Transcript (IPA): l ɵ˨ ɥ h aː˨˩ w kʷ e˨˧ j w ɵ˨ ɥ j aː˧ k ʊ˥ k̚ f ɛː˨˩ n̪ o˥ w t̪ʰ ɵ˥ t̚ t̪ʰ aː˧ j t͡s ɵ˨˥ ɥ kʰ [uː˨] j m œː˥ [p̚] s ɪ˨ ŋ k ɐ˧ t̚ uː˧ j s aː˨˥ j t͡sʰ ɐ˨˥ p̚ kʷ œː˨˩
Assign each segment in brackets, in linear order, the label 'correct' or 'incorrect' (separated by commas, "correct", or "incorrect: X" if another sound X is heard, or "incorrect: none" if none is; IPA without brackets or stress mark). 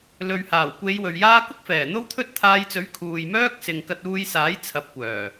correct, incorrect: k̚